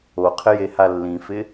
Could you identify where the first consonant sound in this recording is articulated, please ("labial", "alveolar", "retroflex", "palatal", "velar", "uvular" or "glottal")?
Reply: uvular